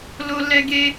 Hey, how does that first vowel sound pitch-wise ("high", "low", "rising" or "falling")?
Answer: high